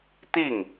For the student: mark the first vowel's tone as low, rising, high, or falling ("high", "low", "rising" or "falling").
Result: falling